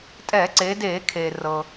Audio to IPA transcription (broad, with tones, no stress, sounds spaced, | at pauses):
tʼ ɛː˧˩˧ ǀ eː˩˧ d eː˧˩˧ kʰ eː˩ r ɤː˩